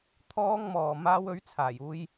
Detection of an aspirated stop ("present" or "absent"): present